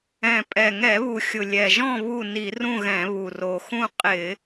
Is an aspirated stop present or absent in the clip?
absent